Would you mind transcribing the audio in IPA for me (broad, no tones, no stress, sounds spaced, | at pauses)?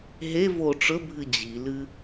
ɦ e v o ʈ͡ʂ ɵ bʱ ɨ d͡ʑ i l ɨ